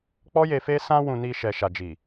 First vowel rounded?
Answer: yes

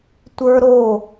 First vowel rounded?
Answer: no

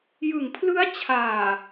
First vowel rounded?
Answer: no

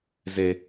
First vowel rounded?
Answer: no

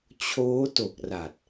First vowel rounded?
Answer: yes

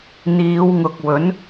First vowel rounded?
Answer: no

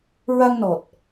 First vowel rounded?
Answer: no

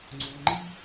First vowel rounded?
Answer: yes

